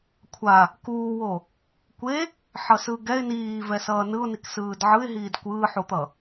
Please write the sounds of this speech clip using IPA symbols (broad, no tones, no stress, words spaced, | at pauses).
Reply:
kʷʰa | kuːwo | kʷe | ħʌsɯɡɛɪ̯ niːvɛ sʌːnɯʊ̯nik sɯːdʕɯɪ̯ɦiːd kʷɯːħut̪ʌ